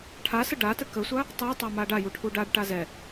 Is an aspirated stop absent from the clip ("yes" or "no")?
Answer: no